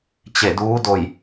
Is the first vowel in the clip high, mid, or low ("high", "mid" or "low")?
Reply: mid